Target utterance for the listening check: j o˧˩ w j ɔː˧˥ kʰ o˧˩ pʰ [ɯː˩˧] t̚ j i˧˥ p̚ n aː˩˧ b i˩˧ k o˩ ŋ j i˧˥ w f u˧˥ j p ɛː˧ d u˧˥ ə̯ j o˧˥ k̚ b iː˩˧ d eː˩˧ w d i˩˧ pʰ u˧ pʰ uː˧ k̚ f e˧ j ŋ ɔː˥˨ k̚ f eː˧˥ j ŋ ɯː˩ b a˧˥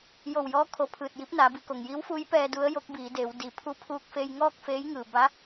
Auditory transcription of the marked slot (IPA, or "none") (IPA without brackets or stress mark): ɯː˧˩